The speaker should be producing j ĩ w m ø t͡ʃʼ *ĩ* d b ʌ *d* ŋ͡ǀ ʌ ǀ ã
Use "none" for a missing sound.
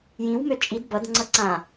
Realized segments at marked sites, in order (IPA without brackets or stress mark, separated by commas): i, d